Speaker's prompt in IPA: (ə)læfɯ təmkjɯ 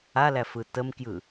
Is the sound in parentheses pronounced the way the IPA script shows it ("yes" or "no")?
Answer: no